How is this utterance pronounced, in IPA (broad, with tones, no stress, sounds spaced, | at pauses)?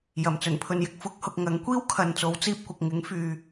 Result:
j ɐ˨˩ m t͡s ɵ˨˩ n pʰ ɵ˨ n j ɪ˧ k̚ f ʊ˨˥ k̚ h ʊ˨ k̚ ŋ ɐ˨˥ ŋ kʷ iː˥ w kʰ ɐ˨ n t͡s o˨˥ w t͡s iː˧ p̚ kʷ ɐ˨ k̚ ŋ ɪ˨˥ ŋ f yː˨